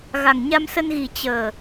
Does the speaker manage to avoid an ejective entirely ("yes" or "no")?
yes